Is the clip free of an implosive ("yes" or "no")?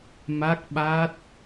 no